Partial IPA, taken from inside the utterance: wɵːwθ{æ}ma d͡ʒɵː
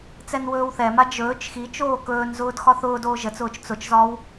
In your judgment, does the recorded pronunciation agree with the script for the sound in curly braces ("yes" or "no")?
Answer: no